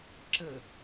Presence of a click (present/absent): present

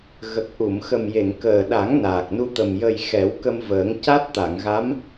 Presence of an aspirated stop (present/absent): absent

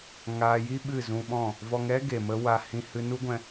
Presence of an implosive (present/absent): present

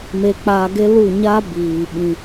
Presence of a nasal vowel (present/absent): present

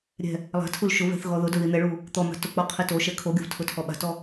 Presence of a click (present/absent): absent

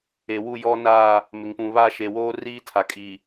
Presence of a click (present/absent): absent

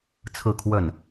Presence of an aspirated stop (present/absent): present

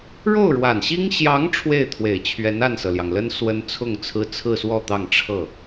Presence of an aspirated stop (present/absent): present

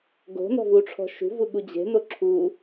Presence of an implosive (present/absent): present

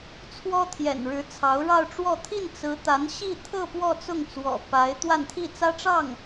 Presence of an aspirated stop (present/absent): present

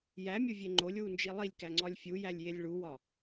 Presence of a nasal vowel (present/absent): absent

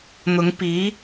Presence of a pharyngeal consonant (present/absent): absent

